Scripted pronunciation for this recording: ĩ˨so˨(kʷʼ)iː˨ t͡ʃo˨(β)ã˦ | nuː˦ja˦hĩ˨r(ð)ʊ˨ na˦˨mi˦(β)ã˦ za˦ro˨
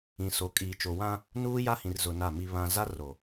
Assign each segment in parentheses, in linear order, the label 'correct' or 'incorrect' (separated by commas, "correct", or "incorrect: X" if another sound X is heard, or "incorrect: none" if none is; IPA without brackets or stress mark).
incorrect: kʼ, incorrect: w, incorrect: z, correct